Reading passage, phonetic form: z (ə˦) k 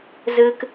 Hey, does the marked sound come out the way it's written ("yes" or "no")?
no